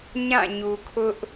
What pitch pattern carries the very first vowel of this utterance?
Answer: falling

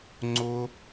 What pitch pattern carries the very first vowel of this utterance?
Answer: high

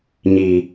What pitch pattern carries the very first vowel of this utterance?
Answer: low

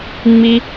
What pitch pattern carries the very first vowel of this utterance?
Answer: high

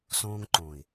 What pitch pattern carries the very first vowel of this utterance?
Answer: high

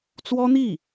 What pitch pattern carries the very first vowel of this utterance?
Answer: high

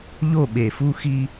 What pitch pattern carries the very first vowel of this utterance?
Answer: falling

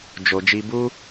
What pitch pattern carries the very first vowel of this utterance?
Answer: low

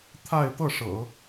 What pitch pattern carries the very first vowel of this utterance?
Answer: falling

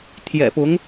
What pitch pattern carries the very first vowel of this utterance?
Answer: low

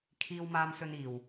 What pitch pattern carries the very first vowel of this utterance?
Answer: high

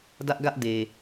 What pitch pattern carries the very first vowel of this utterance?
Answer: high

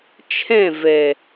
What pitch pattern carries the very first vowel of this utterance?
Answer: falling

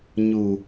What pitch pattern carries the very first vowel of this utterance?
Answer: low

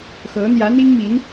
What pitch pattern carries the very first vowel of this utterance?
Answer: rising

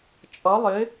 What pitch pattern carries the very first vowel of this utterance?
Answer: rising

